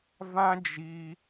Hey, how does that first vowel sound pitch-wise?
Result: high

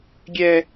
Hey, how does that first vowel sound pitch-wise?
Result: high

